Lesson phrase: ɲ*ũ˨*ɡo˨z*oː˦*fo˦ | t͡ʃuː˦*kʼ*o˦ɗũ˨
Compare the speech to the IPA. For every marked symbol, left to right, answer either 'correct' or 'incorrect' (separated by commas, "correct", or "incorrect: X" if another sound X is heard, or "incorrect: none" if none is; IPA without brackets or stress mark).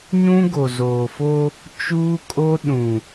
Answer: incorrect: ũ˦, incorrect: oː˨, correct